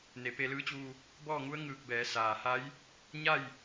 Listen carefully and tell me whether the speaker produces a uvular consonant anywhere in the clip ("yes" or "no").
no